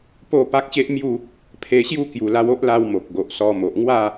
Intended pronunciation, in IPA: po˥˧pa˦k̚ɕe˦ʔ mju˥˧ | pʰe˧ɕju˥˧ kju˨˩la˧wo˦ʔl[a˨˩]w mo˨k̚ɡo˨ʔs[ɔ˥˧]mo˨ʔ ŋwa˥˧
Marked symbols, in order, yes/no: no, no

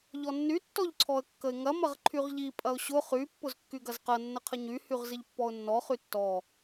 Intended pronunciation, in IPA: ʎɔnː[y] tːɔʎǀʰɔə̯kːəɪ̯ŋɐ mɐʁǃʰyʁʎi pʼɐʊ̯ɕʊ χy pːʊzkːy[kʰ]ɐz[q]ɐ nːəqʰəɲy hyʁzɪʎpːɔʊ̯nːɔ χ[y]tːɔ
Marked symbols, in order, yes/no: yes, no, yes, yes

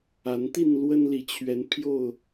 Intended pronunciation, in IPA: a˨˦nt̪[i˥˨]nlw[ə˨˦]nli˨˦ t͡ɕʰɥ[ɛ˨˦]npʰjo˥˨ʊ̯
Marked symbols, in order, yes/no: yes, no, yes

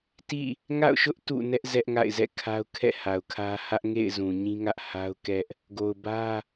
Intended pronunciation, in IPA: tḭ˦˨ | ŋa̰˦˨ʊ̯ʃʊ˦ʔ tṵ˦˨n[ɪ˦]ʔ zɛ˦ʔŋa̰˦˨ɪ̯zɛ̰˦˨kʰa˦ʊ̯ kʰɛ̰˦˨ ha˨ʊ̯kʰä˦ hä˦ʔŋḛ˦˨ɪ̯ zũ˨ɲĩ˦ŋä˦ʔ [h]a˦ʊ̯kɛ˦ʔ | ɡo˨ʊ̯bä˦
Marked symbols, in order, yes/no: no, yes

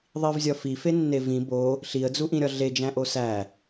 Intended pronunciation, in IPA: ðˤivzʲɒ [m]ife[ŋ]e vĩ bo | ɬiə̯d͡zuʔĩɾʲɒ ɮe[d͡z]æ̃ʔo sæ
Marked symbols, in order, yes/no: no, no, no

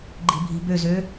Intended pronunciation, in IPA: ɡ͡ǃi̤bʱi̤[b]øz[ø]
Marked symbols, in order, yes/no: yes, yes

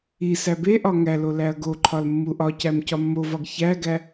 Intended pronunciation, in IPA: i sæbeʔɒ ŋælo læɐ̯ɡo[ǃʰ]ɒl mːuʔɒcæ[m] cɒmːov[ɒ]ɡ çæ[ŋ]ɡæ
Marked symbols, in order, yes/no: yes, yes, yes, no

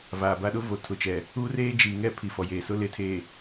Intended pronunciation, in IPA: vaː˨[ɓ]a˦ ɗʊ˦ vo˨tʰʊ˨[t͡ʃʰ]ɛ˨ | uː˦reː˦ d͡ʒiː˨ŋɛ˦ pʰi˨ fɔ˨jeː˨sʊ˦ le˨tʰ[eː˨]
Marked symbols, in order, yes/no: no, no, yes

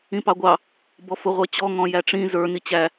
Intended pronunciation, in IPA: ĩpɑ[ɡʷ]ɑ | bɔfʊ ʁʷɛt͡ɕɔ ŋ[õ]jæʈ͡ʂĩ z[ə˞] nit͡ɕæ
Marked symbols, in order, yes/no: yes, no, yes

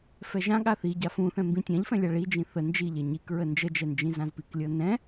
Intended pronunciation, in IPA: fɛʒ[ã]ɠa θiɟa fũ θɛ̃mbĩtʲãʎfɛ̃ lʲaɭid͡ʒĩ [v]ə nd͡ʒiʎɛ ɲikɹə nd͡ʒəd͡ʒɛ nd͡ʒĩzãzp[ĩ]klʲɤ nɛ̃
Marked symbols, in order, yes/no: yes, no, no

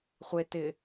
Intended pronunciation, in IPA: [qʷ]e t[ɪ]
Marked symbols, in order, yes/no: no, yes

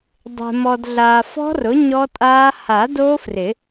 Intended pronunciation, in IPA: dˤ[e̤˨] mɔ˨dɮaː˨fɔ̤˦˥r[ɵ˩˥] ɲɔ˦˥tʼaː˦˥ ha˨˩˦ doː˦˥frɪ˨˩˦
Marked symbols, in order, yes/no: yes, no

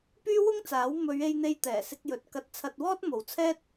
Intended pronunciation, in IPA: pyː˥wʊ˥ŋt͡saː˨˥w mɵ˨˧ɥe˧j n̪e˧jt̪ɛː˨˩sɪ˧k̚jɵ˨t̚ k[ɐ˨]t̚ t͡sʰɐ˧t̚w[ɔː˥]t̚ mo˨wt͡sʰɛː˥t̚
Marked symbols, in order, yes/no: no, yes

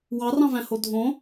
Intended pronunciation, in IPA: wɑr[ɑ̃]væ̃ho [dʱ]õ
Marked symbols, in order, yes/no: yes, yes

